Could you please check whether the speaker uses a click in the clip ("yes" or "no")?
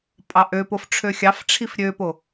no